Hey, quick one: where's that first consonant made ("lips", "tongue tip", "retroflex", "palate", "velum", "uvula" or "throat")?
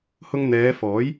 throat